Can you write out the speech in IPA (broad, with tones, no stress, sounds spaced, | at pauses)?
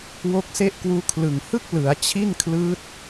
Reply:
w o˦˥ k̚ s e˥˩ ʔ k w uː˦˥ kʰ l ɯ˨˩ ŋ h ɯ˥˩ k̚ l ɯ˩˦ a̯ t͡ɕʰ i˥˩ n kʰ l ɯː˦˥ t̚